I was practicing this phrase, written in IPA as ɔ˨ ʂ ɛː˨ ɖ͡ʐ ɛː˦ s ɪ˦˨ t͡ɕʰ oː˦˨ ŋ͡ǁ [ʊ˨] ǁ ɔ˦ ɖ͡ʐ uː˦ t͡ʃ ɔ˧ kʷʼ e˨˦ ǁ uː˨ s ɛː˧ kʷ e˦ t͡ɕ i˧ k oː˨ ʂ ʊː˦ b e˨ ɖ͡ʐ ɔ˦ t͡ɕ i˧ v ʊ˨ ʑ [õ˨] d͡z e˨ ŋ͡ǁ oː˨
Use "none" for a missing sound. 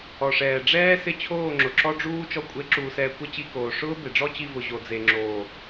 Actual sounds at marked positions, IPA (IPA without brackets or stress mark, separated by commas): ʊ˨, o˨